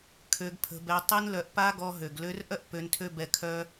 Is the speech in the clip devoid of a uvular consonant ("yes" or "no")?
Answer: yes